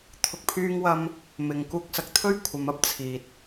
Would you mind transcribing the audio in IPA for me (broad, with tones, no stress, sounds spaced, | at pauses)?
t̪ʰ ʊ˧ k̚ pʰ yː˥ ŋ w ɐ˥ m | m ɪ˨ ŋ k uː˧ k̚ s ɐ˨ k̚ t̪ʰ ɵ˥ ɥ kʷʰ ɐ˨˧ m ɐ˥ p̚ t͡sʰ iː˨ t̚